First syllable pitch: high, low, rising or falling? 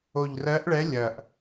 low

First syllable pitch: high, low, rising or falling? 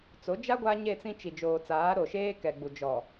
rising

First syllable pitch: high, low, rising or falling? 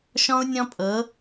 high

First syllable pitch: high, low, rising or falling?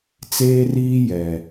high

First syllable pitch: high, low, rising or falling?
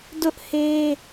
high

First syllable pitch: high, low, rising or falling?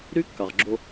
high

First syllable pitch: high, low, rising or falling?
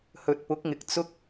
low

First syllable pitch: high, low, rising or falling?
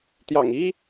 low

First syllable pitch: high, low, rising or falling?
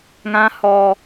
low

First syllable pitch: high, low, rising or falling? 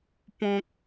high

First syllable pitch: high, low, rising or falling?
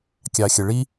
low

